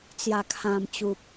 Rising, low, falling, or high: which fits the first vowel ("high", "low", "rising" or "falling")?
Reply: low